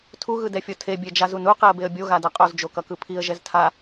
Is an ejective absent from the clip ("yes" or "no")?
no